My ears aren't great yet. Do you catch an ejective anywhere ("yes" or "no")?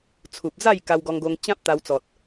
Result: no